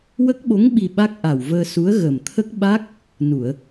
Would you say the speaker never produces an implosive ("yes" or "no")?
no